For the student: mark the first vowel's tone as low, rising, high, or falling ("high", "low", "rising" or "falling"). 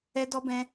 high